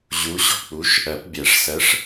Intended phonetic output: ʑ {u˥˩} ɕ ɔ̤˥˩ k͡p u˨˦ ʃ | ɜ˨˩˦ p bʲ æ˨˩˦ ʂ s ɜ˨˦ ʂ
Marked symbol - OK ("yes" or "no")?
no